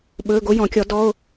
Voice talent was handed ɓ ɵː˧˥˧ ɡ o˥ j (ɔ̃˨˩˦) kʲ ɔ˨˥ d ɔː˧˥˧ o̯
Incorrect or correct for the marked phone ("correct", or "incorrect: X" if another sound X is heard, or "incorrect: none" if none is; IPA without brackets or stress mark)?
correct